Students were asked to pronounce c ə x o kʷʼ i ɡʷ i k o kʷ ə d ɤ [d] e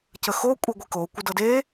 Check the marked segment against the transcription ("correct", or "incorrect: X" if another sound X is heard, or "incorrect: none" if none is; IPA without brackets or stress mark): correct